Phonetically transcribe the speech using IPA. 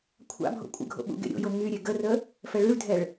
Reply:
kʷʰa̰ bʱo̰kʷʼə̰ɡʱo̰ ɓṵɡḛɾʲo̰jo ŋyɾʲe ɡərə | fɛɭyɭdʱɛɭ

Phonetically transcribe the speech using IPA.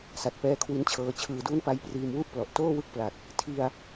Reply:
sa˨˩t̚pɛː˦˥kʰwi˦˥nt͡ɕʰɤː˧ t͡ɕʰɯː˩˦duː˦˥n pa˦˥jpriː˧m wu˥˩ʔplɔ˨˩ʔ toː˥˩wɯ˥˩k̚pla˨˩t̚ | tʰi˧a̯

